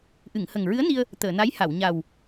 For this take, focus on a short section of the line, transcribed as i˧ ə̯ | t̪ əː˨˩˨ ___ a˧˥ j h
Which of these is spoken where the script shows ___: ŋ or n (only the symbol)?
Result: n